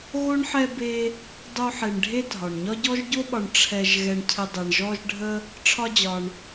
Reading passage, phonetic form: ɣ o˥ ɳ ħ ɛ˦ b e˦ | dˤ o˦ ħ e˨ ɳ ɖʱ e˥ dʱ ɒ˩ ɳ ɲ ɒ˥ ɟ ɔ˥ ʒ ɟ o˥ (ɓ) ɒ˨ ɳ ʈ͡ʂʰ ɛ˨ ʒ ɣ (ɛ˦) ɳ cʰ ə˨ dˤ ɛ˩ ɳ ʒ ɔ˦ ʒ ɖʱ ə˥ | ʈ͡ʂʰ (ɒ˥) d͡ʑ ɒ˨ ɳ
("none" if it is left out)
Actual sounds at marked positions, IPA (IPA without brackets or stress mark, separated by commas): ɓ, ɛ˨, ɒ˥